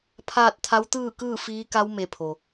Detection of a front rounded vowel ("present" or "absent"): absent